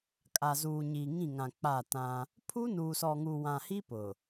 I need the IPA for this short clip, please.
kʼa˨ zuː˨ɲiː˨ ŋĩ˦˨ŋã˨ k͡pa˦˨tã˦ | pʰu˦nuː˨sɔ˨ŋu˨ wã˨hi˦ pʊ˨

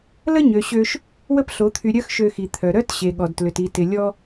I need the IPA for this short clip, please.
lə˦ɲø˨ɕø˧ʃ | wə˦pɬo˨˦t̪ʰy˧ ɾʲœ˦xʃø˧xi˨ t̪ʰœ˨ɾœ˦t ɕe˨ɠɔ˨dtlʏ˨ti˧ tɪ˧lʲɔ˦

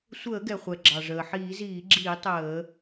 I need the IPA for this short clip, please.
sʷəː˧˩˧ɡɛ˩χʷɛ˩ ɡ͡ǁɑ˩ʐəː˩ ħiː˧˩˧ziː˧˩˧ɡ͡ǁiː˧˩˧ tˤəː˧˩˧

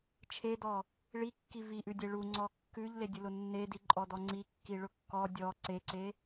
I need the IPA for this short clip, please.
t͡ʃʰedɔ | ɭikːi viʔʉdʲe ɭuŋ͡ǀɔ kːʉʎledʲʊlʊ nːediǃʼɔdɔ ŋ͡ǀikːiɭʊ kːɔ dʲɔ ǀeǀe

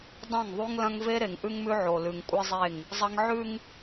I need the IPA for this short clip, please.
dˤɐ̃˦˨ŋðˤu˦ŋlɐ̃˦ŋ ve˦ɾe˨ŋʔʉ˦ŋmʉ˦ ʕo˨lʉ˨ŋ kʷʼɨ˦zˤe˦˨ŋ | zˤɐ˦ŋ ʕʉ˦ŋ

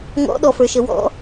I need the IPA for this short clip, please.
ŋɔ̰ɗɔfə˞ʃə wɔ̰

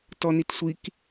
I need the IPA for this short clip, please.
tɔnitsʷik

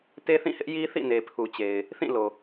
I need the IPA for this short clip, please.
te˦θĩ˦˨hɪ˦ʔji˦ θḭ˦˨ne˨pʰu˨t͡ɕe˨ɪ̯ | θĩ˦˨lo˨

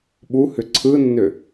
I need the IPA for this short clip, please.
ɓuhʏ ǀʰɯnːʏ

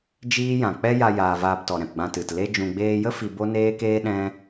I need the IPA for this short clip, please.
d͡ʒiː˦jã˨ k͡pɛ˦ja˧jaː˨ vaː˧ptɔ˨ɾɛ̃˨pɡ͡bã˧ tɨ˨tle˦ d͡ʒũ˨ɡ͡beː˧jə˦ fi˧bo˦neː˦keː˦ ɗɛ̃˦

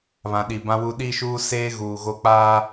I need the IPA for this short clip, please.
βã˨ɗi˨ bã˦wu˦ ɗi˦ʃuː˦seː˦ ɣuː˨ɣo˦˨k͡paː˦

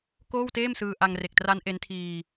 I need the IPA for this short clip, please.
koː˥˩wteː˥˩msɯː˧ ʔa˧ŋre˨˩k̚tra˦˥n ʔe˦˥ntʰiː˧

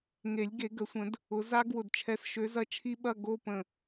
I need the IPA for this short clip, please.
ŋe˨˩˦lʲ ɡe˨˩˦ɡə˨˩˦ sʷə̃˨˩˦d | ʊ˨˦ za˦˥ ɡwʊ˧˩dt͡ʃʰɛ˨˦sʃø˨˦ zɐ˦˥t͡ʃʰi˦˥ɓɐ˧˥˧ ɡo˧˥˧pə̃˧˩

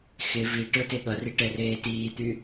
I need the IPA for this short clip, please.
xɪ vi ʈə˞teɠʌri ʈɛreːtiːt̪y

